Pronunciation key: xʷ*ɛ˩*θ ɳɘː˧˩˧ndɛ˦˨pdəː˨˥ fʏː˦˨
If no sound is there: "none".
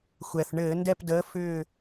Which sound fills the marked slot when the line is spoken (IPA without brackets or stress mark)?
ɛ˩